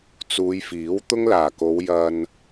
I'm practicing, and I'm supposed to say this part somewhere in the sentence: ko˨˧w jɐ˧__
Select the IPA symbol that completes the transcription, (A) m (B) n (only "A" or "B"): B